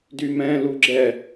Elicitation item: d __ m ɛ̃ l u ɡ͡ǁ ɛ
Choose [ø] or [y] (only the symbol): y